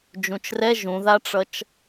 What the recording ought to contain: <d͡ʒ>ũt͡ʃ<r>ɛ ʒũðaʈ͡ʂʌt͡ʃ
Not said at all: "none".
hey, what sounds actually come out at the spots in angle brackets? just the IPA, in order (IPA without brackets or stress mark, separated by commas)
d͡ʒ, r